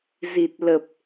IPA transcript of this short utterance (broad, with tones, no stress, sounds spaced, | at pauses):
z i˨˩ t̚ l ə˨˩ p̚